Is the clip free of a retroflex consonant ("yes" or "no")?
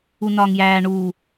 no